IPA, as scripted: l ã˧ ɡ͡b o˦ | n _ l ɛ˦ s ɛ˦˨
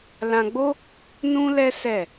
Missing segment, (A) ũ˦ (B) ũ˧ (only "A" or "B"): A